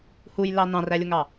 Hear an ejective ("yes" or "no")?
no